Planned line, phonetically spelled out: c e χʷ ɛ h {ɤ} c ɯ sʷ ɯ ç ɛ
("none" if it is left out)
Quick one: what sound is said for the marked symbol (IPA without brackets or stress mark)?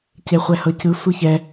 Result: ɤ